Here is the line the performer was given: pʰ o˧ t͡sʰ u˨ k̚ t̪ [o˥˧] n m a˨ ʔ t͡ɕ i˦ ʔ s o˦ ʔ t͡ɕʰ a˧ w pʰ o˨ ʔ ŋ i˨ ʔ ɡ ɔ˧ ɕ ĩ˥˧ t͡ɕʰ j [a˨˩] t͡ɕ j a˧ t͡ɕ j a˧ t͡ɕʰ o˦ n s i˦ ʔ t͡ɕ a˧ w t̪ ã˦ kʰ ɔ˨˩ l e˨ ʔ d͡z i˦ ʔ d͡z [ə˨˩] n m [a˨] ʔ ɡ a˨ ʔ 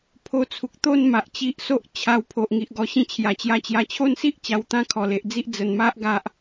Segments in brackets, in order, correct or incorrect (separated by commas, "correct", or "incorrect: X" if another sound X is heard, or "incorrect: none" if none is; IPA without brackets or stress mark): correct, correct, correct, incorrect: a˦